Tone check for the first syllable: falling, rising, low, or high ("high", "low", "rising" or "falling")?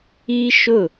high